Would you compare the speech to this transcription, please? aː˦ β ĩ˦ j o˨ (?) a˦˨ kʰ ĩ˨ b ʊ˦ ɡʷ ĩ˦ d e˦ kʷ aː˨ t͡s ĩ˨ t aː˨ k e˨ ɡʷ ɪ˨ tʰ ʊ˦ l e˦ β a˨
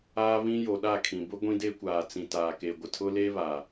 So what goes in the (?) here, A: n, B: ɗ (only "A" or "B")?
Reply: B